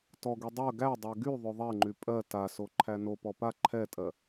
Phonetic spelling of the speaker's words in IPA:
t ɔ ɡ y dˤ ɜ ɡ æ dˤ ɜ ɡ y ðˤ ø ðˤ ɛ ŋ͡ǃ y pʼ ɜ t a s o ǃʰ æ n o p ɔ p a ǃʰ ɛ tʼ ɜ

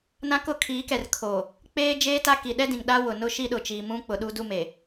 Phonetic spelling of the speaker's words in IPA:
n ã˦ k ʊ˦ kʰ iː˨˦ k ɛ˨ r kʰ o˨ | k͡p eː˦ d͡ʒ eː˦ t a˦ k i˨ ɗ ɛ˦ d ĩ˨ ŋ ɗ a˦ w ʊ˨ n ʊ˦ ʃ i˦ ɗ ʊ˨ t͡ʃ iː˨ m ũ˦ k͡p ʊ˨ ɗ u˦ d u˦ m e˨

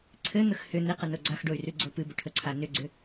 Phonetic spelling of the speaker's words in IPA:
ǀʰ ɘ n̪ ə x h ʏ n̪ e q ə n o ɡ͡ǀ a x ɖ o y̯ r ʉ ɡ͡ǀ o p ɨ b ʏ ʈʰ ə ǀʰ a n ʏ ɡ͡ǀ ʏ

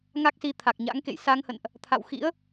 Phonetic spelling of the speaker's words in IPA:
ŋ a˦˥ k̚ s i˧ t̪ʰ a˨˩ k̚ ɲ a̰˧˥ ŋ k ḛ˧˨ j s a˧ ŋ h ə̰˧˨ n ʔ | t̪ʰ a̰˧˨ w x ḭ˧˥ ə̯

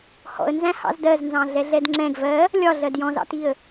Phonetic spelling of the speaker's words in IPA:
h ɔ̰ ə̯ n z æ̃ h ɑ̰ z d ɜ z n z ɑ̃ ɮ ɛ ɮ ɛ d ŋ͡ǁ ɛ̃ ɡ v ɜ | lʲ ɒ ɮ ɜ d j ɔ̃ z ɑ̰ t i ə̯

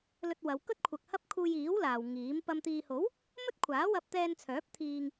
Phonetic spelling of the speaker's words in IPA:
l ɵ˧ t̚ w ɐ˨˧ w k ɵ˥ t̚ kʷʰ ɐ˨ k̚ h ɐ˥ p̚ kʰ uː˧ j iː˨˥ w l aː˨ w ŋ iː˨˥ m p ɐ˨ m t̪ iː˨ h o˨˥ w | m ɵ˥ t̚ kʷʰ aː˨˥ w ɐ˧ p̚ t̪ ɛː˧ n t͡sʰ œː˨˥ p̚ t̪ʰ iː˧ ŋ

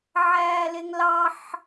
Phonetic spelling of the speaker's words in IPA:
ʕ æː l e ŋ l ɑ ħ

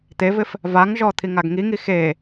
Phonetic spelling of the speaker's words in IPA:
t̪ e v ɪ f | v a ŋ ʒ ɔ t̪ʰ i ŋ a ɡ ŋ i ŋ i x e

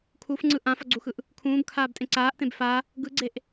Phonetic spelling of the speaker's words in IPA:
kʰ u f ŋ͡ǀ ɯ ʔ ã f ʌ ɡ͡ǀ u x ɯ ʔ | kʰ ũː b kʰ aː b tʼ ẽ ǀ aː ʔ t ẽ b f a | ɡ ɯ ɡ͡ǀ e ʔ

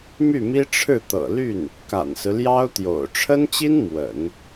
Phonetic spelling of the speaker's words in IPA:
m y˥˩ m i˥ ʈ͡ʂʰ ɻ̩˥˩ t̪ ɤ̰˨˩ l y˥˩ n | k a̰˨˩ n s ɹ̩˦ l j ɑ˥ ʊ̯ t̪ j o̰˨˩ ʊ̯ ʈ͡ʂʰ ə˥ n t͡ɕ i˥ n m w ə̰˨˩˦ n

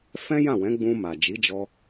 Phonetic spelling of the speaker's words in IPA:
f ɛ̃˦ j ã˦˨ w ɛ̃˨˦ ɡ͡b ũ˧ m a˨ d͡ʒ i˨˦ d͡ʒ ɔ˧

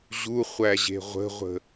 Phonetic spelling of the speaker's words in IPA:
ʑ u χʷ æ ʑ e̤ ʁʷ ə̤ ʁʷ ə̤

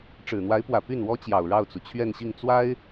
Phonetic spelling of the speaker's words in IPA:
ʈ͡ʂ ɻ̩˨˩ n̪ w a˧˥ ɪ̯ p w ä˨˩ p y˥˩ n w ɔ˥ t͡ɕ j ɑ˨˩ ʊ̯ ɻ ɑ˥˩ ʊ̯ t͡s u˩ t͡ɕʰ ɥ ɛ˥˧ n ɕ i˥˩ ŋ t͡s w a˥ ɪ̯

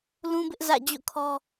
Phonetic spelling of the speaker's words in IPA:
l ũ˦ b ɪ˦ ʔ z ä̰˦˨ d͡ʑ o̰˦˨ kʰ ɔ˦

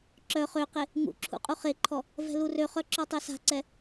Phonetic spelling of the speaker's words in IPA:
ǁ œ χ ø q e | ŋ ṵ ǁʰ ṵ qʼ u χ e ǃʰ ɔ | v ɛ̤ l u r ø χ œ ǁ ɔ tˤ e s a̤ ǀ ɛ

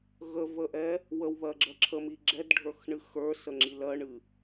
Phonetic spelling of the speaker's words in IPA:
ɣ ə v ə ʔ ɛ | w ə w β ɜ ɡ͡ǁ ɜ ǁʰ ə m i ɡ͡ǁ ɛ d ɖʱ ə˞ x ɳ ɨ x ə˞ s ə ŋ͡ǁ i l ɜ ɳ ɨ

